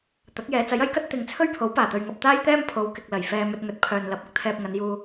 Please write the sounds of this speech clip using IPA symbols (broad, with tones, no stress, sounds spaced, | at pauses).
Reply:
t̪ ɐ˨˥ k̚ j ɛː˨˧ t͡s ɐ˨˥ j ɐ˨˥ j k ɐ˥ t̚ t̪ ɪ˨˧ ŋ t͡sʰ ɵ˥ ɥ pʰ o˨˥ w p aː˨˩ t̪ ɵ˨ ɥ ŋ ɐ˨ p̚ t̪ aː˥ j t̪ ɛː˥ m pʰ o˨˧ w k ɪ˨ k̚ l ɐ˨˩ j f ɛː˧ m ɵ˧ t̚ ŋ ɵ˨˥ t̚ pʰ œː˨ n l ɐ˨˥ p̚ ʊ˥ k̚ t̪ʰ ɛː˨ p̚ ŋ ɐ˨˧ n j uː˧